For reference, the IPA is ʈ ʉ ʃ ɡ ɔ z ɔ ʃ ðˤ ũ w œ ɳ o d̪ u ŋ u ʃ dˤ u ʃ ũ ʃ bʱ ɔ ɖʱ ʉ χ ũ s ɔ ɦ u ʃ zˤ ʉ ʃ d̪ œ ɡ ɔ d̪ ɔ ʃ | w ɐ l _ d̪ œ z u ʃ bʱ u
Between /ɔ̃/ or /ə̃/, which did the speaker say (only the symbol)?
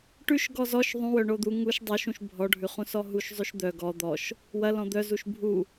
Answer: ɔ̃